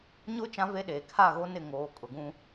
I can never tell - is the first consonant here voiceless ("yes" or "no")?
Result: no